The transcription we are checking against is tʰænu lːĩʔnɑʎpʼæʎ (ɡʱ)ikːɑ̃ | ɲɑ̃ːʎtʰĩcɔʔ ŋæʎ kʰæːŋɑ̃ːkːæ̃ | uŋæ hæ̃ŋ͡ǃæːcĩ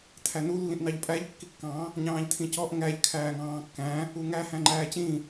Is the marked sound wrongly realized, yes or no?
yes